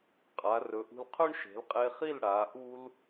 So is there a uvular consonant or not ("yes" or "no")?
yes